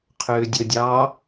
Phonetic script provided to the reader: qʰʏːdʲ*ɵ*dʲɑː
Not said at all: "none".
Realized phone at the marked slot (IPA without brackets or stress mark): ɵ